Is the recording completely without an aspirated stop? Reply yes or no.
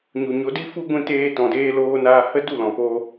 yes